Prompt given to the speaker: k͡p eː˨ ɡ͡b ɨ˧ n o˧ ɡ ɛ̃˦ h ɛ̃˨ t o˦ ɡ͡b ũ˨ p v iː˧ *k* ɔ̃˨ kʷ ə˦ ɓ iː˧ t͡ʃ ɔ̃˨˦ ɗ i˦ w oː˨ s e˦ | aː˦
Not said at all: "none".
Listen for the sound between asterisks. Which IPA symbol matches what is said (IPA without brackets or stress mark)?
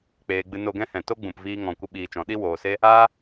ŋ